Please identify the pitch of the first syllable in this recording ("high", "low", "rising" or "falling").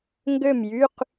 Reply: falling